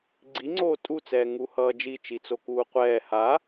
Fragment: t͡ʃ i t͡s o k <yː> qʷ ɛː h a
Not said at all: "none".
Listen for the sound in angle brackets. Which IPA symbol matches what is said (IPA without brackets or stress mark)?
uː